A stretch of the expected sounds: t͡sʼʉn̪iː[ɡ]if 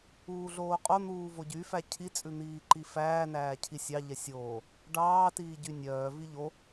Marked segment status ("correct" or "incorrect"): incorrect